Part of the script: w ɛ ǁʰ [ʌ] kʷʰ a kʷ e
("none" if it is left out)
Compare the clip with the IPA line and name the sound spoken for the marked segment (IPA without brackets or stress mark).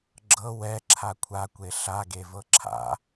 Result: a